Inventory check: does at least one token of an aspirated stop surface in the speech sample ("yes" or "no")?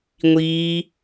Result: no